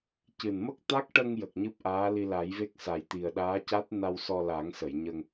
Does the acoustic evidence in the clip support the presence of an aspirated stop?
no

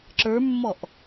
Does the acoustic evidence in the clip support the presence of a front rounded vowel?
no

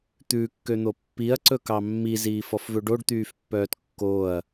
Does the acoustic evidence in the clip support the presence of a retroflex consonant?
yes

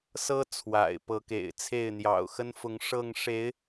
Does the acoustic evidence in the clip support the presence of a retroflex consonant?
yes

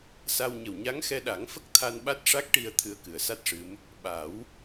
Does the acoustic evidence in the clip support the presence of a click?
no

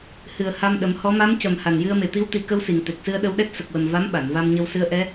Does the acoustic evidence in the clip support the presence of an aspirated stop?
no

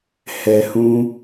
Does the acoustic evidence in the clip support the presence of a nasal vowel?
yes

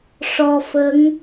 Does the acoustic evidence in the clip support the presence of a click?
no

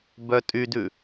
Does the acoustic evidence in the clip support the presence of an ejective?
yes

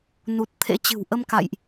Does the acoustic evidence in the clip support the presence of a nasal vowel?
no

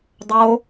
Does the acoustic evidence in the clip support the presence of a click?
no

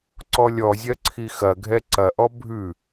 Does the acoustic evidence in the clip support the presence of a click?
yes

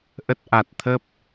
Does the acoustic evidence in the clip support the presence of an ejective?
no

